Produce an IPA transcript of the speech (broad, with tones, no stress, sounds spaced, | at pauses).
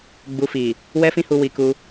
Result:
ɡ͡b u˨ f i˨ | w ɛ˦ f ĩ˦ h u˧ w i˧ k u˧